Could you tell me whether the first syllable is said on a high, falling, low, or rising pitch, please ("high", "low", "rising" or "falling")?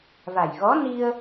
low